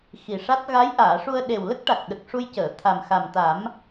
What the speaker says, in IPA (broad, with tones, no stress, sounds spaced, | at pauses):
x i˨˩ ʂ a˦˥ t̚ ɣ a˧˥ j ʔ aː˨˩˨ ʂ u˧ ə̯ ɗ e˨˩ w l ə˦˥ k̚ ʈ a˨˩ k̚ ɗ ə˨˩ k̚ ʂ u˧ j c əː˨˩˨ t̪ʰ a˨˩ m x a˨˩ m t̪ a˨˩˦ m